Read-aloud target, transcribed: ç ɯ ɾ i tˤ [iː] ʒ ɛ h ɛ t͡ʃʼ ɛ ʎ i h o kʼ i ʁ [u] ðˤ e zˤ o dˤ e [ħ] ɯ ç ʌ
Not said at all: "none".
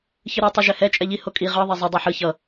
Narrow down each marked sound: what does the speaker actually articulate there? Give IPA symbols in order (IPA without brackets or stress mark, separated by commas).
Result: i, ɯ, ħ